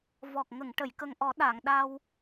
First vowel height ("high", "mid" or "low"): mid